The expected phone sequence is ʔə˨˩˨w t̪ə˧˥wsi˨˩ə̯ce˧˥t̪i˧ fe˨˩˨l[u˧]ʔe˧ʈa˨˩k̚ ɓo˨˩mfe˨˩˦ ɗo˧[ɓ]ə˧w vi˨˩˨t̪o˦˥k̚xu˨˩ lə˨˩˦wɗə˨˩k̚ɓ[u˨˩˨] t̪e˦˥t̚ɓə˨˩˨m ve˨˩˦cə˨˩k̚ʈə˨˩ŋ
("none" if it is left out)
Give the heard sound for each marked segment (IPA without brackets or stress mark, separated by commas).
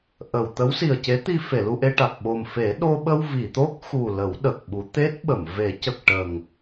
u˧, ɓ, u˨˩˦